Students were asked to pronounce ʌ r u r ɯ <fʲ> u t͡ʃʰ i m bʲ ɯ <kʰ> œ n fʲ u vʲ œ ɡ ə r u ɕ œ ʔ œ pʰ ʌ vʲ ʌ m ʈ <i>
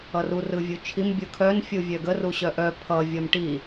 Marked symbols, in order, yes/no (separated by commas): no, yes, yes